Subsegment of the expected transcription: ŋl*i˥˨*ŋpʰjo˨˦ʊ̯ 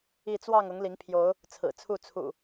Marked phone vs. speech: incorrect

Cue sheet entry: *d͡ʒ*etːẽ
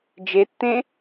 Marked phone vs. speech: correct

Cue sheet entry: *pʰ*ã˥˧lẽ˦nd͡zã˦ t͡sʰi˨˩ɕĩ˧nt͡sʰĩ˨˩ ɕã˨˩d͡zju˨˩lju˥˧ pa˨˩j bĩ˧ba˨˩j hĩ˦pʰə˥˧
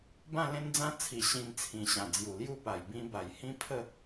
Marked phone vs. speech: incorrect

